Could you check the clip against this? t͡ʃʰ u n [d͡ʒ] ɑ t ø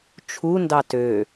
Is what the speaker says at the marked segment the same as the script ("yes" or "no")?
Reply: no